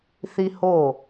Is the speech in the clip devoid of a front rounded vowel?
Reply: yes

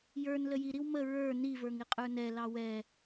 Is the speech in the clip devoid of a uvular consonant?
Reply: no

